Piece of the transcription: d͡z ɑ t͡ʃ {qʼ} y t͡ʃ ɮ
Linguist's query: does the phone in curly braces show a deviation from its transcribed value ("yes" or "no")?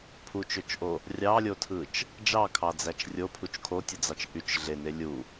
yes